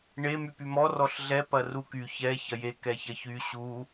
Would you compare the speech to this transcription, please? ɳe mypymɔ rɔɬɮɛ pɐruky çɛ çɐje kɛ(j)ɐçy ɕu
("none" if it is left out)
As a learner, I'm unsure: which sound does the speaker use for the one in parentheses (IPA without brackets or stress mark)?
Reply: ç